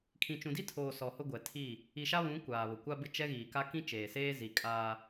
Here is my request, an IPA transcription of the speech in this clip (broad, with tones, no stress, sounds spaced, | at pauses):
kʰ ĩ˨ t͡ʃ ũ˨ d i˦ tʰ oː˨ s ɔ˨ h ʊ˦ ɡʷ ɛ˨ tʰ i˦˨ | i˨ ʃ a˦ β ũ˨˦ kʷ aː˨ β ʊ˨ kʷ a˦ b ɪ˦ t͡ʃ ɛ˦ ɣ iː˨ k a˦ k ĩ˦ t͡ʃ eː˨ s eː˦ z i˨ kʼ aː˦